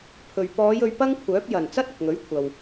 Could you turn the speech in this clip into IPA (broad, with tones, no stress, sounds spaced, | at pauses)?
pʰ ɵ˨ ɥ p ɔː˨˧ j ɵ˨˧ ɥ p ɐ˥ ŋ kʷʰ œː˨˥ p̚ j ɐ˨˩ n t͡s ɐ˥ t̚ ʊ˨ k̚ ŋ ɵ˨˥ ɥ kʷʰ ɐ˨ w